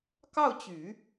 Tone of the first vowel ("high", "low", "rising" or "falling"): falling